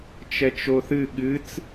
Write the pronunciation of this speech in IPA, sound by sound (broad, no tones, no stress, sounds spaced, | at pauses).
t͡ʃ ɛ t͡ʃ o θ ɨ ɠ ɨ t͡s